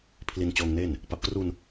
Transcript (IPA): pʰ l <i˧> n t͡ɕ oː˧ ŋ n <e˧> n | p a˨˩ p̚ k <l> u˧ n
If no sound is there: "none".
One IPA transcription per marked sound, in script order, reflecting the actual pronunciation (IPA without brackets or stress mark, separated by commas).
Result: i˧, e˥˩, r